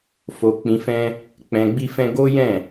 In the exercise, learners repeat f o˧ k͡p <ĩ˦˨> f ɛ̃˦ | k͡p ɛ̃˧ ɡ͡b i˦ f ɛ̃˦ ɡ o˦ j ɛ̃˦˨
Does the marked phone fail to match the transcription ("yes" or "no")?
yes